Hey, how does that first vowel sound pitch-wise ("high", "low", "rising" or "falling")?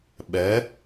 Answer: rising